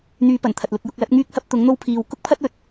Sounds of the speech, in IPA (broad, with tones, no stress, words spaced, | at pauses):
n̪yː˧pɐ˨˩nt̪ʰɐ˨t̚ lʊ˧k̚jʊ˧k̚lɐ˨˥t̚ ŋyː˥k̚hɐ˥p̚ t̪ʊ˨˥ŋn̪o˥wpʰiː˧w kʊ˥k̚pʰɐ˥t̚wɵ˨t̚